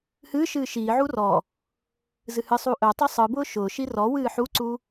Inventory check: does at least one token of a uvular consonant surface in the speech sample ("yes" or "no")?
no